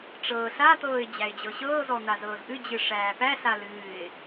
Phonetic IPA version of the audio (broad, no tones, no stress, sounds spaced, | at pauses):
ʈ͡ʂ ɤː ɬ a t̪ ɤː ɪ̯ d͡ʑ æ ɪ̯ d͡ʑ ɤ ɕ ɤː z ɔ n̪ a z ɤː z ʔ ɨ d͡ʑ ɨ ʂ æː p æ ɬ a l ɨː ɪ̯